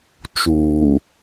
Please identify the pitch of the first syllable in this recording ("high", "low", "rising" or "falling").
low